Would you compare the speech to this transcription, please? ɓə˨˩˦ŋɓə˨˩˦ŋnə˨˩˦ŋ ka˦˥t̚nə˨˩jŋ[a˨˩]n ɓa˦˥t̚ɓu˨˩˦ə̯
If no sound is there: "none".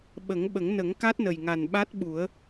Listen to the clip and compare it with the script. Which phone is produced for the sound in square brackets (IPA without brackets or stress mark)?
a˨˩